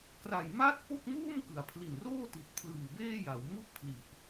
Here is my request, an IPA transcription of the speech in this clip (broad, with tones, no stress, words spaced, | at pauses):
kra˨˩jma˥˩t̚ po˥˩k̚muː˥˩m kɯ˩˦a̯pʰli˨˩nroː˥˩ti˨˩t̚ pʰlɯː˨˩beː˥˩ja˩˦w mu˥˩ʔ pʰli˨˩ʔ